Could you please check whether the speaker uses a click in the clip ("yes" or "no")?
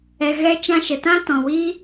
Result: no